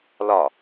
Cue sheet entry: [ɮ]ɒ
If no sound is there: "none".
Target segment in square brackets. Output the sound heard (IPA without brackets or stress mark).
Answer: l